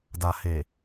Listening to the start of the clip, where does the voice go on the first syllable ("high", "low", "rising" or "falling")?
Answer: low